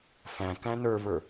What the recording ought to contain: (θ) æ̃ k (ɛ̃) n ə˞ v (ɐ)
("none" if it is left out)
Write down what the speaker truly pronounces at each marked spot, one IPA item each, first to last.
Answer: f, æ̃, ə˞

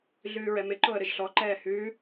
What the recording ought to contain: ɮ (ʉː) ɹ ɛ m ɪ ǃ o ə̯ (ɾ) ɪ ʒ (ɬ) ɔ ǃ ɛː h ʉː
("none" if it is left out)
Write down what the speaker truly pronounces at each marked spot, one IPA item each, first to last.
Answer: ʉː, ɾ, ɬ

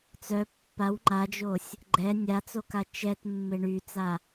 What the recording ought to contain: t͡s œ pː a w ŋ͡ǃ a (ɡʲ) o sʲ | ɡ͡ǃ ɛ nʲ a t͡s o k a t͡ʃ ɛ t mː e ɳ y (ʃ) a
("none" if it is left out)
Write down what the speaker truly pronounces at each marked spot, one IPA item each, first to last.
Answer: d͡ʒ, t͡s

